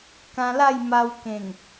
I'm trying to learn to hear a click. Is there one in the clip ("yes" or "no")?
no